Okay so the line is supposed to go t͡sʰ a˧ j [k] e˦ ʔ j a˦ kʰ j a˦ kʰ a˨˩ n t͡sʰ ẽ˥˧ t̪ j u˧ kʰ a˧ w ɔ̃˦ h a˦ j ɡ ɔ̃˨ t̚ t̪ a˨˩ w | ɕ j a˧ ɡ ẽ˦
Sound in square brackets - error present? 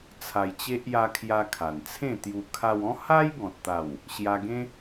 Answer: yes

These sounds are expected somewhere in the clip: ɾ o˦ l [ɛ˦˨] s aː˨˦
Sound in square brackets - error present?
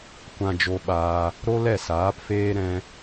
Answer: no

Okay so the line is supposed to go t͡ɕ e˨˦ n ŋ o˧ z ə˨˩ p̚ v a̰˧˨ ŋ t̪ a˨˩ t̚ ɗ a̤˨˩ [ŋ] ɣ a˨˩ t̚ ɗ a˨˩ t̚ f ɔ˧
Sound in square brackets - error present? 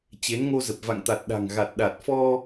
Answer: no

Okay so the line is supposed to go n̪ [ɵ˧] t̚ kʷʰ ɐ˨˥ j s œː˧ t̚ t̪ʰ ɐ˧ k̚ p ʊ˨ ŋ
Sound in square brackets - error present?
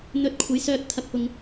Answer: no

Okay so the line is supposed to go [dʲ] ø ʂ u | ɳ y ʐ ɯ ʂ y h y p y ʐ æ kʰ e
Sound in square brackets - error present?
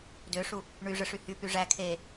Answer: yes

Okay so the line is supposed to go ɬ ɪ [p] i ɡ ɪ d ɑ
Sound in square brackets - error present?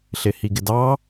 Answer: yes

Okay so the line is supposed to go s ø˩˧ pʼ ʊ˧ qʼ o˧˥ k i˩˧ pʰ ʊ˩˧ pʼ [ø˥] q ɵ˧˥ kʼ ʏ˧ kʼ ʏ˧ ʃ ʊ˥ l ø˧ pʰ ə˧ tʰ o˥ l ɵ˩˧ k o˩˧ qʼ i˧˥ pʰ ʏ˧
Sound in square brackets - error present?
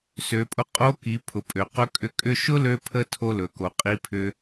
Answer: yes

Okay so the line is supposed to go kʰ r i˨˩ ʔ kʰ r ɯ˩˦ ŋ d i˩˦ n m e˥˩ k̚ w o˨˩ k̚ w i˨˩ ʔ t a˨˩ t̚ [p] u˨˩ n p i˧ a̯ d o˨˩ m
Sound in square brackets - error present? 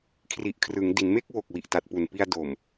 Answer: no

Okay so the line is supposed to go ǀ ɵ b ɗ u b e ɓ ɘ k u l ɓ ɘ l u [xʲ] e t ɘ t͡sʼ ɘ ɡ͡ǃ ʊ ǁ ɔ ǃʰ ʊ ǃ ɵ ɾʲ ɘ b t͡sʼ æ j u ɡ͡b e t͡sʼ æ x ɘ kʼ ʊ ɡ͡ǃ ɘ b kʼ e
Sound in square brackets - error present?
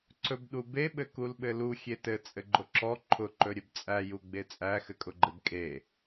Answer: no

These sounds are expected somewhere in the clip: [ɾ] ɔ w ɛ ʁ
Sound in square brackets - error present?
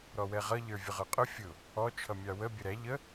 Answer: no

